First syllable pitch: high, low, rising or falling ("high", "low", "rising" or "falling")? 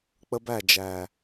high